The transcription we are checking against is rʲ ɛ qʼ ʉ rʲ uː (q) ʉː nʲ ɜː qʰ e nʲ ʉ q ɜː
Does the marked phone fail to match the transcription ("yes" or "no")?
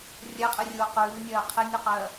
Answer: no